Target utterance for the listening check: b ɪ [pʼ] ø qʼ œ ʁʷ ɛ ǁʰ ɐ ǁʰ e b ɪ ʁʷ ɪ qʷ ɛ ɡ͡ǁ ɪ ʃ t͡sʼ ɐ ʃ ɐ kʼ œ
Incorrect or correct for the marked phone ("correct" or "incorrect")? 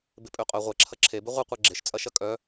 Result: correct